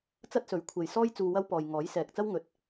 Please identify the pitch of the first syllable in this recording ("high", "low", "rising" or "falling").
high